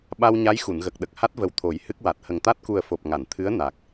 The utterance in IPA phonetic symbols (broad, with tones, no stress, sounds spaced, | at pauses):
ɓ a˧ w ɲ a˧˥ j x u˨˩˨ n ɣ ə˨˩ k̚ ɗ ə˨˩ k̚ h a˦˥ t̚ v ə˨˩ w t̪ʰ o˨˩˦ j h ɨ˦˥ k̚ w a˨˩ t̚ h ə˨˩ ŋ t̪ a˦˥ t̚ k u˨˩ ə̯ f o˨˩ p̚ ŋ a˨˩˨ n t̪ʰ ɨ˧˥ ə̯ n a˨˩ k̚